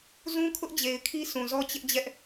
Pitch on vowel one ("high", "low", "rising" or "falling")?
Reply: high